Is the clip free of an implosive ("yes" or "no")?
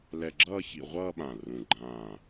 no